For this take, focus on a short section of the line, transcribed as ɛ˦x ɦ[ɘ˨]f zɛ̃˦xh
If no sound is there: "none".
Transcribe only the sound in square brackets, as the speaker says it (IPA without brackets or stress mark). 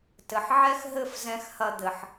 ɘ˦˨